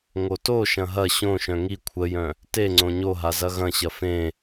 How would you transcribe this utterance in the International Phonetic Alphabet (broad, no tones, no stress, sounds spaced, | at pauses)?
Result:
ŋ o t o ʃ ɐ̃ ɦ ɐ ɕ õ ʃ œ̃ ŋ i kʷʰ ə j œ̃ | t e ŋ͡ǀ õ ɲ o ɦ a z ɐ ɣ ɐ̃ ɕ ɐ f ẽ